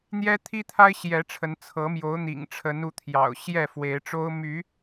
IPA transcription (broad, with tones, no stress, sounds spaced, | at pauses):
n̪ j ɛ˦ t̪ʰ i˦ t̪ʰ a˦ ɪ̯ ɕ j ɛ˨˦ ʈ͡ʂʰ ə˨˦ n t͡sʰ ɤ˨˦ m j o˨˦ ʊ̯ n̪ ḭ˨˩ ŋ ʈ͡ʂʰ ə˨˦ n u˨˦ t̪ʰ j ɑ̰˨˩ ʊ̯ ɕ j ɛ˥˨ f w e˨˦ ɪ̯ ʈ͡ʂ o˦ ʊ̯ m y˨˦